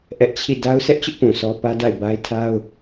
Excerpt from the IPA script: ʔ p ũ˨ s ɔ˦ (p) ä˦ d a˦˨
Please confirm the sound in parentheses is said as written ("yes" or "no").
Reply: yes